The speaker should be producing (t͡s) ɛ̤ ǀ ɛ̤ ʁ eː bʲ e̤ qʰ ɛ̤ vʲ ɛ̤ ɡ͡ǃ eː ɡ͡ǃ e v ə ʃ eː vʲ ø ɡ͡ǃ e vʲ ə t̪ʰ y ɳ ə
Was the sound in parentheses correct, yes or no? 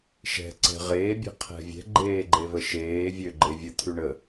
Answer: no